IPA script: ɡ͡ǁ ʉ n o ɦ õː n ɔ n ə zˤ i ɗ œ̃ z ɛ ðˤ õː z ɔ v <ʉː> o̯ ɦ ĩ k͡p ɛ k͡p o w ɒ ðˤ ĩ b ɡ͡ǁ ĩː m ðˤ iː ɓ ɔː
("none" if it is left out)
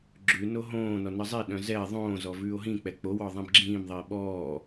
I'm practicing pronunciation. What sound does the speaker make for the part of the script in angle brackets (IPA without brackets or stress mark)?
ʉː